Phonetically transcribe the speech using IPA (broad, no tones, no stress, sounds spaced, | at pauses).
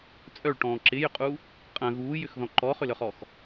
t͡sʼ œ ɭ ʈ ɔ̃ː ǁ ɪ j ʏ qʼ u | qʼ ɐ̃ ɣ uː j ʏ x ð ɔ̃ ǃ ɔ χ ʏ l œ χ ɔ x